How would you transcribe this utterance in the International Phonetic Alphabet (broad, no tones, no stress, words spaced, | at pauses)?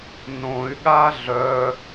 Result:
nõy̯ɠa ɮœ